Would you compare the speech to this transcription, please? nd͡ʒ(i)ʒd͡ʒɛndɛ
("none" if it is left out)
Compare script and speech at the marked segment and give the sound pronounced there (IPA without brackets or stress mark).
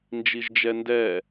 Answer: i